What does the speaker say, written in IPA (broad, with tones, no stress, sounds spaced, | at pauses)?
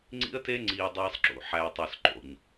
ŋ͡ǀ ḭ˦ ə̯ t e˦ ŋ͡ǀ iː˨ dˤ iː˨ sˤ ǁ ṵ˨ ħ æː˨ tˤ ø˨ s ǃ o̰˨ ɲ